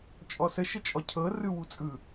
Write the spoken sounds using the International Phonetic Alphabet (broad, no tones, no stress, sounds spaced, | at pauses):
t͡ʃʼ ɔ s ə ʃ ə t͡ʃʼ ɔ cʰ ɤ r ɯ w u t͡sʼ ɯ